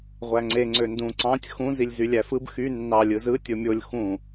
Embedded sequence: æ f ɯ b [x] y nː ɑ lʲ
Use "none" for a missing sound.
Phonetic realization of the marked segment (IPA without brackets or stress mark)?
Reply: x